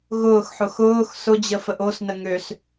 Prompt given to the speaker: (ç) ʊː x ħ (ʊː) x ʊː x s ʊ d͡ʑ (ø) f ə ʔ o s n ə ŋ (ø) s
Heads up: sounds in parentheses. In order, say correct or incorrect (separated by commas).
incorrect, incorrect, incorrect, correct